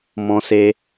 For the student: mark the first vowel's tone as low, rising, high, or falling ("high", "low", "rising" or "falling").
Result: high